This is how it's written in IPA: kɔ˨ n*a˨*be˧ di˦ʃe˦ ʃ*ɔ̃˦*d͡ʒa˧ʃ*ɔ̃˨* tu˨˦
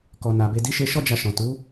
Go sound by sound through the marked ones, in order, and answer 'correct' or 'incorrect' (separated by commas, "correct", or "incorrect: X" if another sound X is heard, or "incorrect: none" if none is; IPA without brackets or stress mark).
correct, incorrect: ɔ˦, correct